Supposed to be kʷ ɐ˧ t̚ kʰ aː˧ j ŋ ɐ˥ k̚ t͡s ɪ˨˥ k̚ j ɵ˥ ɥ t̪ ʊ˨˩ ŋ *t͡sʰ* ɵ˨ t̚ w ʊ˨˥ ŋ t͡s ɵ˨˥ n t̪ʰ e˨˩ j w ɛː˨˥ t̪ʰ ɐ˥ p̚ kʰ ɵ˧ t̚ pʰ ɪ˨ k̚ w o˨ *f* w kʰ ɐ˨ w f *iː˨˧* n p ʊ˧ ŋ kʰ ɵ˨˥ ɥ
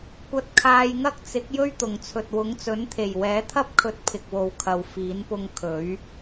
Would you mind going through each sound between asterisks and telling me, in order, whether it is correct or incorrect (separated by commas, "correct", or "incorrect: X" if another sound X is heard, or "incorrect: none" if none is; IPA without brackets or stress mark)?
correct, incorrect: none, incorrect: iː˨˥